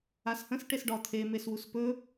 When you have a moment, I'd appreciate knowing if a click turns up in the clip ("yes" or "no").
no